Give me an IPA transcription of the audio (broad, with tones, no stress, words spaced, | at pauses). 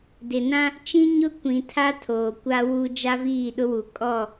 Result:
dɪ˨nã˦ | t͡ʃĩ˦ɲʊ˦ kʷĩ˨tʰa˦ tʰoː˨kʷa˦wu˦ d͡ʒa˦viː˦˨ɗʊ˦wu˨ kʼɔ˦˨